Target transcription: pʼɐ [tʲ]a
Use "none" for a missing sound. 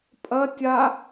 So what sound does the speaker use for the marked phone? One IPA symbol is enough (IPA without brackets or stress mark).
tʲ